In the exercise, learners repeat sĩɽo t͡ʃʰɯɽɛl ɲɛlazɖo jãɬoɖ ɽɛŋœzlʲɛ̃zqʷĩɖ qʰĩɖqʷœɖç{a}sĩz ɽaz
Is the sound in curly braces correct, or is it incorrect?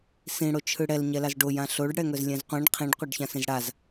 incorrect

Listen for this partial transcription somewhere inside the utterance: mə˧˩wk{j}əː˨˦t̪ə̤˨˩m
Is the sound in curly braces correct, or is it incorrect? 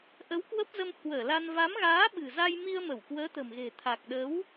incorrect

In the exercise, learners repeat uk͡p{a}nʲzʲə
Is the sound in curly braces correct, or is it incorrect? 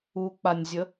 correct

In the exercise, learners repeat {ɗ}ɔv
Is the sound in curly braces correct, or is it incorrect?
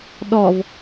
correct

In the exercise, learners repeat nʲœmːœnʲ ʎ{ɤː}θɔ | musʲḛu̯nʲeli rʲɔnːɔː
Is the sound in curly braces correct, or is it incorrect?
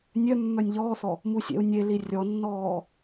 incorrect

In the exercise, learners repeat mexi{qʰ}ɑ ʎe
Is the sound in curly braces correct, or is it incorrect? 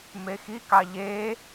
incorrect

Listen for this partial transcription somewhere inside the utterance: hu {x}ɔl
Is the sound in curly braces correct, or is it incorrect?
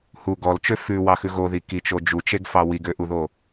incorrect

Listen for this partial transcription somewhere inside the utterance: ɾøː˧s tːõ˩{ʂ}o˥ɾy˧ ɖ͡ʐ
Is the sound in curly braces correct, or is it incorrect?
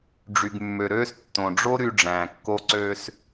incorrect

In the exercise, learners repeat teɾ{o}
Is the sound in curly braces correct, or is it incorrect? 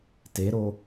correct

